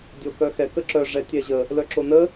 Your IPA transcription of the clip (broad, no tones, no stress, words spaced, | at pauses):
dʲokœxɛ kəǁœ ʐɛtʲɛʑə | lœǁonə